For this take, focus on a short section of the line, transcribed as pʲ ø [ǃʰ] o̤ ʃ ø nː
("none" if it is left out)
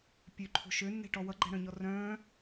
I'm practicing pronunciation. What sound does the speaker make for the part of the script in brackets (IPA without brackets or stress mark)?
ǃʰ